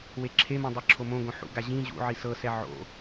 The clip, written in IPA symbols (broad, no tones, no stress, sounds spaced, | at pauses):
w e ǁʰ e m õ dˤ ɯ ǁʰ o m õ ɡ õ ħ ṵ ɡ a ʑ ĩ ʑ ṵ ʕ i s ɤ s ɛ ʕ o̰